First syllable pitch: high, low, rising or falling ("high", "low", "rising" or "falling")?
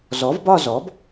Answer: rising